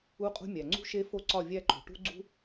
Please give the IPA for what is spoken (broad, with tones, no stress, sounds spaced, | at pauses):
u˦ qʼ ṳ˦ mʲ æ˩ ŋ͡ǀ ṳ˦ ʃ e˦ f o˦ ǀ ɒ˦˨ vʲ æ˦˨ ǃ o̤˩ ʈ ṳ˦ ɡ͡ǀ ṳ˦